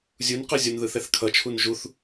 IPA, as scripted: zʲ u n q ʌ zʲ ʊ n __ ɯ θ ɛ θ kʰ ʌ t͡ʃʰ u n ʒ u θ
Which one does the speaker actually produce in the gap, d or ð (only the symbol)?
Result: ð